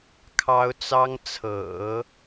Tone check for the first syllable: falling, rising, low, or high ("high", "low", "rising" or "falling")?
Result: high